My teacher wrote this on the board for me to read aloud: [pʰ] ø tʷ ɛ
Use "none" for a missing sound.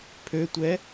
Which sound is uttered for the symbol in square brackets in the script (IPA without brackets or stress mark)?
pʰ